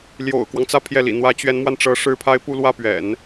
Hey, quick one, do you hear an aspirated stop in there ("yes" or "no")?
yes